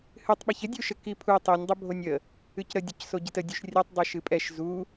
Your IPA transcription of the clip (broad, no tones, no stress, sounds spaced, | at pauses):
h ɨ tˤ ɓ ɛ ç ə dʲ u ʃ ə k i pʰ u tˤ i nʲ dˤ ə bʱ o nʲ ə | ɨ c ɾ ə dʲ ə c s o ɟ i t ə dʲ u ʃ rʲ ɛ tˤ dˤ i ʃ ɨ pʼ ɛ ʃ z u